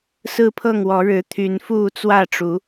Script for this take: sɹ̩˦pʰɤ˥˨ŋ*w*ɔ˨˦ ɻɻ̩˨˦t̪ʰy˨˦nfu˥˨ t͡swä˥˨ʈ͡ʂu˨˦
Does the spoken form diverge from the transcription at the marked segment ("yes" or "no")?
no